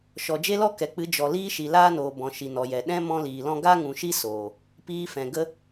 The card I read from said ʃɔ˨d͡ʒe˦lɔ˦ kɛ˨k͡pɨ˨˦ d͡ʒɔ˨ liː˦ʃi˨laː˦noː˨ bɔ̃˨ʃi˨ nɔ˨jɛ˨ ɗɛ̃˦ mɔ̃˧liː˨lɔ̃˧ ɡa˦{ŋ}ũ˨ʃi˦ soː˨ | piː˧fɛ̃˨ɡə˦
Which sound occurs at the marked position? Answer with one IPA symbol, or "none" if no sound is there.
ŋ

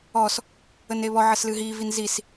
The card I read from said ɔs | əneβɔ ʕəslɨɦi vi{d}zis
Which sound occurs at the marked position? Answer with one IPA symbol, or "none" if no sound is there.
n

